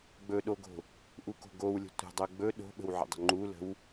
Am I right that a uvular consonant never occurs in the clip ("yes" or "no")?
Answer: yes